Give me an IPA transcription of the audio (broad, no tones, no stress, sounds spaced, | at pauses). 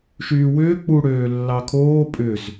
ʃ yː w ʏː k͡p u ɽ øː lː ɑ kʰ oː pʼ ʏ z